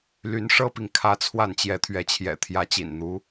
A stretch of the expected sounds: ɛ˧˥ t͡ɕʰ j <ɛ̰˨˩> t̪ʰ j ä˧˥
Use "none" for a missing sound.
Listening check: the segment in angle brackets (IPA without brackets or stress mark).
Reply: ɛ̰˨˩